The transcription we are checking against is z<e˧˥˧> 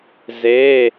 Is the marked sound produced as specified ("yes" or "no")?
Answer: yes